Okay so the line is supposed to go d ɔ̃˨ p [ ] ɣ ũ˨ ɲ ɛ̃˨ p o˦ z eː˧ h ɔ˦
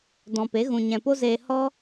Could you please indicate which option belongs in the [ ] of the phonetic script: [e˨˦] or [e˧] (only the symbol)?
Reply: e˨˦